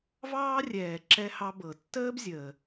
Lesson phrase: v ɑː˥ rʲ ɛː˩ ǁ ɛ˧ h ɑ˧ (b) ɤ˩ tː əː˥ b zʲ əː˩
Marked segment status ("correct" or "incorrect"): correct